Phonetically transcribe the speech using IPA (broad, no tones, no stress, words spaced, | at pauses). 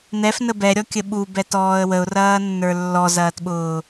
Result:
n̪ɛfnə bɛɾʲɔkʲə ɓubɛtɔːə̯ wəʊ̯rɐːnːə˞ lːɔzɐːtɓʊː